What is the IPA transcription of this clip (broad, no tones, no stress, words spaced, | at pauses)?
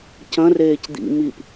cɐ̃reːc d̪ḭ mip